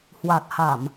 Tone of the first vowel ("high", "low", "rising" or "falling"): low